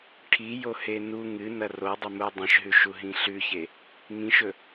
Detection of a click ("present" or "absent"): absent